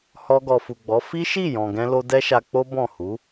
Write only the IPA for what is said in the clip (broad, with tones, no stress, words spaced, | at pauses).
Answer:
hɔ˧ɡɔ˨fu˨ɡ͡bɔ˨˦ fi˦ʃi˦˨ jɔ̃˨ɡɛ̃˧lo˧ dɛ˦ʃa˧k͡po˦ bɔ̃˦˨ hu˨˦